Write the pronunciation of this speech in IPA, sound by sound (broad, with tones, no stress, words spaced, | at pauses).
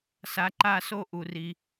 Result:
sa˨˦ǃa˦˨so˦˨ ʔu˩ri˩